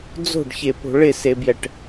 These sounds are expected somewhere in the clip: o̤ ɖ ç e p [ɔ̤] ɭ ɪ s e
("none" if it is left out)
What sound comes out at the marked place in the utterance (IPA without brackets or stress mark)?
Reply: o̤